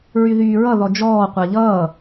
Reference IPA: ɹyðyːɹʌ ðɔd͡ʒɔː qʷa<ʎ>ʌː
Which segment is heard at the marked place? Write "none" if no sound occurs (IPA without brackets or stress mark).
ʎ